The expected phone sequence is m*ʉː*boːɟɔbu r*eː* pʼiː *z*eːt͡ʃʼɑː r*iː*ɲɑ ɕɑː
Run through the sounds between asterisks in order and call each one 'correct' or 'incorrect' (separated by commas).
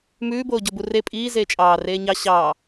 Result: correct, incorrect, correct, incorrect